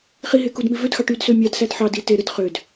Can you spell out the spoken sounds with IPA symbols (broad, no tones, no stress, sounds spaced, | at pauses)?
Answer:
χ i ɦ e k u d m i v ø d x ɑ ʈ y d s ø mʲ ɑ d s æ d ħ ɑ d i t e ɾ ɯ d χ ø d